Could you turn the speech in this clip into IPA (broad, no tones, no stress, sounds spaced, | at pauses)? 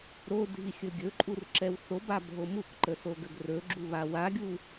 ɾ o dʱ i xʲ ɵ ɡʲ ɵ ǃʼ u r ǁ ɛ w θ o b a bʱ o m u k ǃ ə s o ɡ ə ɡ r ɵ ɡ͡ǁ u β a w a ɡʲ u